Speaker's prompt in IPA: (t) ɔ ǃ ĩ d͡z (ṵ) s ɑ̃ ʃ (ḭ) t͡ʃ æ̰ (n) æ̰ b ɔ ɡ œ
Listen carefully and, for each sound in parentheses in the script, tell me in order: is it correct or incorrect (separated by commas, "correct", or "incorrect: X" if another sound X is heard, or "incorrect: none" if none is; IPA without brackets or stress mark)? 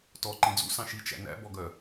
correct, correct, incorrect: i, correct